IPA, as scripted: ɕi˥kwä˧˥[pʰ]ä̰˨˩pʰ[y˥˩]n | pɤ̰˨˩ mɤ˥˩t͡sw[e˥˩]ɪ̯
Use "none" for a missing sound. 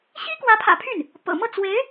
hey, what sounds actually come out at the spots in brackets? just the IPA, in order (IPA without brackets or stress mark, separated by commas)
pʰ, y˥˩, e˧˥